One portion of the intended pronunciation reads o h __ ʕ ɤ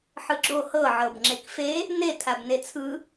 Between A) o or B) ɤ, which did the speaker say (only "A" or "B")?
B